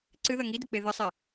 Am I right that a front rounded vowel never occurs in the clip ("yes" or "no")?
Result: yes